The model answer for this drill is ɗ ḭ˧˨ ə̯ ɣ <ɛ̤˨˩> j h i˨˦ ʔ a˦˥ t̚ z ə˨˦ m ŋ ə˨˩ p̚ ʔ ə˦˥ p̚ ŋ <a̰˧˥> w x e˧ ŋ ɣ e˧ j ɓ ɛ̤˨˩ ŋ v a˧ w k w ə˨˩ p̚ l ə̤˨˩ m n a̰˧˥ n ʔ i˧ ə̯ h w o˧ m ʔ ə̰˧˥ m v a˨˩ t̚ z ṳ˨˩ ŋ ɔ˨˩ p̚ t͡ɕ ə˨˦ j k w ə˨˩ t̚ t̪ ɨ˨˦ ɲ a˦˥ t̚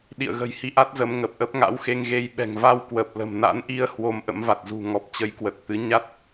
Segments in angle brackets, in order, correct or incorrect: incorrect: ə̤˨˩, correct

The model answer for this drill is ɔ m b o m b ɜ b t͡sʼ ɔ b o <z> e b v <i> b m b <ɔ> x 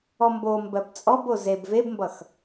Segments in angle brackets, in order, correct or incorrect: correct, incorrect: e, incorrect: ʌ

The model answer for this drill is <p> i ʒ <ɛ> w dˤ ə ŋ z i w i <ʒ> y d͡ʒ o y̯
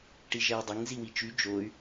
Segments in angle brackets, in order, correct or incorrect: incorrect: ʈ, correct, incorrect: t͡ʃ

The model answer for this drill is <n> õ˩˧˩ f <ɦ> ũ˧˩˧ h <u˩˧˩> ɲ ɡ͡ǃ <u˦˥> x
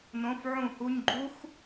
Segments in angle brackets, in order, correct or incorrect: correct, incorrect: ʕ, correct, correct

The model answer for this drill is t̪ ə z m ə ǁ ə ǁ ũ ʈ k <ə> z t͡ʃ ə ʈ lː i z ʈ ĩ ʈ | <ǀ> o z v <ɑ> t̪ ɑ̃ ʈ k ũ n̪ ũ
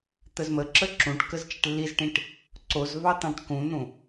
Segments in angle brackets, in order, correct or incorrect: correct, correct, correct

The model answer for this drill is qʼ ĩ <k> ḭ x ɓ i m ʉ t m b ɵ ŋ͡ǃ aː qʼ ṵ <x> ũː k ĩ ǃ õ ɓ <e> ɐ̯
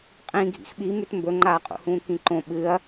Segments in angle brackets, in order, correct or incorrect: incorrect: ɡʱ, incorrect: h, incorrect: ɨ

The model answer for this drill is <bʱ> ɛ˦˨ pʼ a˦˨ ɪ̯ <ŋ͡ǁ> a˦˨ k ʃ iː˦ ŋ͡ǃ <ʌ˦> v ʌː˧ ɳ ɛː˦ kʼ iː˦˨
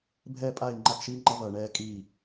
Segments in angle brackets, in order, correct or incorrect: correct, incorrect: ŋ͡ǃ, correct

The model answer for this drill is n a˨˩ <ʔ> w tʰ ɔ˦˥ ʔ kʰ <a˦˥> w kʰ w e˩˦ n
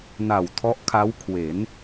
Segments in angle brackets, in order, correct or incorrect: incorrect: none, correct

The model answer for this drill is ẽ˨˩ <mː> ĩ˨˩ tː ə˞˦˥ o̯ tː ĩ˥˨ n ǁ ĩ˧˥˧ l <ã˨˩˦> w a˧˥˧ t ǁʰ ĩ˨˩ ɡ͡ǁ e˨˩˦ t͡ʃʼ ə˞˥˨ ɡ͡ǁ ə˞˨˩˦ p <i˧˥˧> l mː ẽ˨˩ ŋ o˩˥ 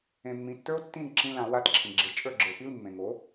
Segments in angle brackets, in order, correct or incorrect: correct, correct, correct

